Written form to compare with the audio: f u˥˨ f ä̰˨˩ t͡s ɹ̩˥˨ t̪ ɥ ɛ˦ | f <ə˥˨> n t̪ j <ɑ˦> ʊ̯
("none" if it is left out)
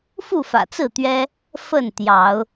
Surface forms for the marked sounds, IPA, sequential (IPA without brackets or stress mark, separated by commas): ə˥˨, ɑ˨˦